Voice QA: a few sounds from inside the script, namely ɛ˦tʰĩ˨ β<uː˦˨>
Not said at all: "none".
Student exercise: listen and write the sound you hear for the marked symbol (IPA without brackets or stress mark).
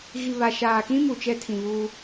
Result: uː˦